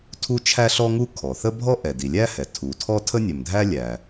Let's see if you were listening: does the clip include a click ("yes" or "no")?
no